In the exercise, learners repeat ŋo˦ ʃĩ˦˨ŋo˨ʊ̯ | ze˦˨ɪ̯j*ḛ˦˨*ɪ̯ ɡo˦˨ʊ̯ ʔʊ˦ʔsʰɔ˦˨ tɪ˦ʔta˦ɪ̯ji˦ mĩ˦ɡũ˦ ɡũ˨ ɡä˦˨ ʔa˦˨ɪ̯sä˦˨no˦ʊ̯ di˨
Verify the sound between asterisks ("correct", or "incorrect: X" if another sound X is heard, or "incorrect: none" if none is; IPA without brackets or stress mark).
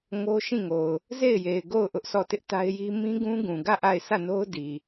incorrect: e˨